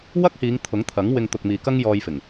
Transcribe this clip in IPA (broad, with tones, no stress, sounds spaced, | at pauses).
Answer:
w ɐ˥ k̚ h iː˨˧ ŋ t̪ʰ ʊ˨˥ ŋ t̪ʰ ɐ˨˥ ŋ w ɪ˧ ŋ t̪ ʊ˨ k̚ m iː˨ k ɐ˥ ŋ j ɔː˧ j f ɪ˨˩ ŋ